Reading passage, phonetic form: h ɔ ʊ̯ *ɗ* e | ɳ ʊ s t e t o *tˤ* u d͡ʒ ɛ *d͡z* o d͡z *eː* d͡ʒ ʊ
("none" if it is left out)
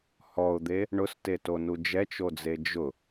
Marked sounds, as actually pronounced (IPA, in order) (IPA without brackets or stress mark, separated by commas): d̪, n, t͡ʃ, e